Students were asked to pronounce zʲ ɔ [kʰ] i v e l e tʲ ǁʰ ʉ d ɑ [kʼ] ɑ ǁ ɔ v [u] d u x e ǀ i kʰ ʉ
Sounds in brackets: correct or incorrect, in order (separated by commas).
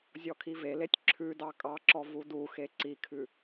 correct, correct, correct